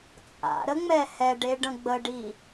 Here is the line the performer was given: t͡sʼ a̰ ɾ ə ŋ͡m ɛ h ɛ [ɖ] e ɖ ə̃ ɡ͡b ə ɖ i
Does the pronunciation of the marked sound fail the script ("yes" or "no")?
no